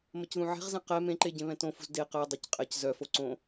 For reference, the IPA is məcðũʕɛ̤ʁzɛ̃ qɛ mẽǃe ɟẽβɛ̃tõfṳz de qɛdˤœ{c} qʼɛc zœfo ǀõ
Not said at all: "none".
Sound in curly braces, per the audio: c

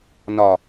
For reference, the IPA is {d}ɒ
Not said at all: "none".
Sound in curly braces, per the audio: n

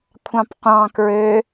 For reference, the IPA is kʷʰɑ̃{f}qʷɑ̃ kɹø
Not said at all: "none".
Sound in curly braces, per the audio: p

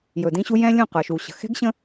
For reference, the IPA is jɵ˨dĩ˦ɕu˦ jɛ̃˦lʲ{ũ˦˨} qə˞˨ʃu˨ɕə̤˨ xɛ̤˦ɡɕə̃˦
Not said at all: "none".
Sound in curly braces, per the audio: ũ˦˨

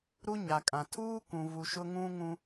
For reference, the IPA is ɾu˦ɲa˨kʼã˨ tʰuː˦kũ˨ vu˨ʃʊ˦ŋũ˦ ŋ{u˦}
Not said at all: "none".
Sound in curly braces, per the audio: ũ˦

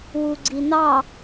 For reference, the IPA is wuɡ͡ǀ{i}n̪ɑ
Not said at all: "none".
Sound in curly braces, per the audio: i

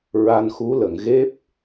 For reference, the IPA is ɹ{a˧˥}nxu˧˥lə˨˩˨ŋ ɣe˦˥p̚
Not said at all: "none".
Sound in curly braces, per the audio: a˧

